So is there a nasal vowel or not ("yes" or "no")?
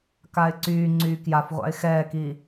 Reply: no